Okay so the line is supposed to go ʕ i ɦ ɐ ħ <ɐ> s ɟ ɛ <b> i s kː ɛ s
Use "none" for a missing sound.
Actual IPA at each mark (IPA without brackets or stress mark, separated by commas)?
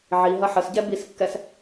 ə, b